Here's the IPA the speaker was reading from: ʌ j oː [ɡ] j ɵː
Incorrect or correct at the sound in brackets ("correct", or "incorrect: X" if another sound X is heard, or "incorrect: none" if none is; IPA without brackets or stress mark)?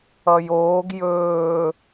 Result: correct